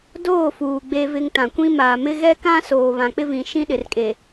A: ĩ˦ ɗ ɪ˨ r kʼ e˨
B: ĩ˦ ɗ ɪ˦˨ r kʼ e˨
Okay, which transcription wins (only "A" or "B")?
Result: A